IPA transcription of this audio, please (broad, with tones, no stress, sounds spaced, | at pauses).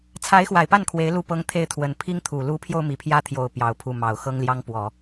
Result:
t͡sʰ a˧˥ ɪ̯ x w a˨˩ ɪ̯ p a˥˩ n kʰ w e˧˥ ɪ̯ l u˥˩ p ɤ˥ ŋ t̪ʰ e˥˩ ɪ̯ t̪ʰ w ə˨˩ n pʰ i˥ ŋ t̪ʰ u˨˩ l u˧˥ pʰ j o˧ ʊ̯ m i˨˩ pʰ j ä˥ t̪ʰ j o˨˩ ʊ̯ p j ɑ˧˥ ʊ̯ pʰ u˥˩ m ɑ˨˩ ʊ̯ x ɤ˥ ŋ l j ɑ˥ ŋ p w ɔ˨˩˦